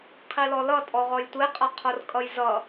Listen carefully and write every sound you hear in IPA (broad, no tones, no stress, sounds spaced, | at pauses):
qʰ i l ɔ l ʌ tʼ ɔ ʁ ɔ j tʷ e qʼ ʌ qʰ o r kʼ ʌ j z ʌ